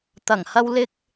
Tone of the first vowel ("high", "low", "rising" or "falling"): low